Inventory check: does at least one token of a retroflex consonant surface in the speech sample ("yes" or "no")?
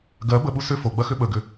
no